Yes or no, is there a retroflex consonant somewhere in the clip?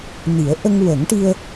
yes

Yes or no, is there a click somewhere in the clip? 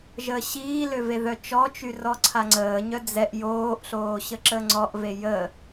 yes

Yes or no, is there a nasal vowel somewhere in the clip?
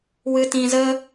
yes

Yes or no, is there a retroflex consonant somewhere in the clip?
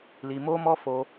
no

